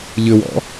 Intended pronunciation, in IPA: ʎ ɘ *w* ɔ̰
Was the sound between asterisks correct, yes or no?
yes